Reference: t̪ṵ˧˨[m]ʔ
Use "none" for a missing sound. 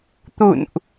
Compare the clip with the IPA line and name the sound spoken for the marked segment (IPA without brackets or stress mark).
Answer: n